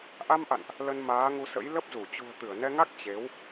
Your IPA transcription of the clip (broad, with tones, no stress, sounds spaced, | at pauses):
ʔ a˧ m ʔ a̰˧˨ n ʔ | l ə˧ n m aː˨˦ ŋ u˧ s ə̰˧˥ j l ə˦˥ p̚ z u˧˩ t͡ɕ ṳ˨˩ ə̯ t̪ ɨ˧˩ ə̯ n ɛ˧ ŋ a˦˥ k̚ t͡ɕ e˨˦ w